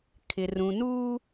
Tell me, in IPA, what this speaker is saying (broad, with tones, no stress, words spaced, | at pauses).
kʰɪ˨ rũ˨nuː˦